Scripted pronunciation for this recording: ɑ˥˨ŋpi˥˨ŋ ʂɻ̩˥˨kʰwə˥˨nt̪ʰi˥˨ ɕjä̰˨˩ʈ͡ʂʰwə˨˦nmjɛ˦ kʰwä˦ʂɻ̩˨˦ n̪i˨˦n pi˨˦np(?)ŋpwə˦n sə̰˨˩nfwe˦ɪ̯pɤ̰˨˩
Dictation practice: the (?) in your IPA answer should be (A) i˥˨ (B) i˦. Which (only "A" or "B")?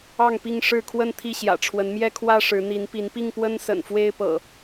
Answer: A